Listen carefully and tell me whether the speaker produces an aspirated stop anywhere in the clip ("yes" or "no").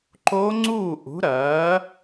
no